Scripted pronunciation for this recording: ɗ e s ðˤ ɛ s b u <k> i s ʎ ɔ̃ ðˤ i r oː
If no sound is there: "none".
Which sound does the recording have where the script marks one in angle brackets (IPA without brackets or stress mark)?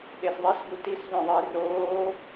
t